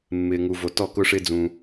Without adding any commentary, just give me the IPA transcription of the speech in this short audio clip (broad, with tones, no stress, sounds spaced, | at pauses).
mː ɪː˨ ŋ u˨ v o˨ t ɔ˦˨ k ʊ˦ ʂ ɪː˦ d͡z ũ˧